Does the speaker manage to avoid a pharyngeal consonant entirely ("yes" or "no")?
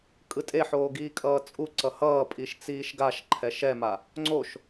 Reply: no